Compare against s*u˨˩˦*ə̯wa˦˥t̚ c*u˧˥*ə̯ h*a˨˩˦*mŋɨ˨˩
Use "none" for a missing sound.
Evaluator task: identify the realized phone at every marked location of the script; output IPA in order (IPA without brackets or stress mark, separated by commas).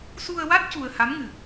u˧, u˧, a˧˥